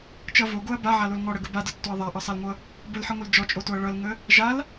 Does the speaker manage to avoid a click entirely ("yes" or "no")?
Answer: yes